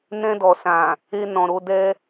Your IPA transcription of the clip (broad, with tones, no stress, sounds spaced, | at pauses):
n ɛ̃˧ d ɔ˨ s ã˨ | e˧ n ɔ̃˨ ɾ o˨˦ d ɛ˦